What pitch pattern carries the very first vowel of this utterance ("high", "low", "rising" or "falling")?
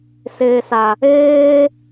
low